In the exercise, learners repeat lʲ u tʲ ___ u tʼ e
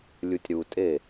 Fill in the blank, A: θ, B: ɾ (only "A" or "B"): B